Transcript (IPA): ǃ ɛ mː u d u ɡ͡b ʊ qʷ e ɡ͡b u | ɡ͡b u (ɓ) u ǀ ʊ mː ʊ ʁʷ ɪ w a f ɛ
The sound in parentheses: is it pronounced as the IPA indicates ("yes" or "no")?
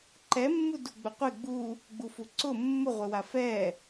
no